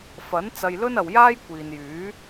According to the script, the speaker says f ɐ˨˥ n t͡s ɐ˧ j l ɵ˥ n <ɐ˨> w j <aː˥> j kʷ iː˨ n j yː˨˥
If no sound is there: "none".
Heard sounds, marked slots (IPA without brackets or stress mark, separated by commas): ɐ˨, aː˥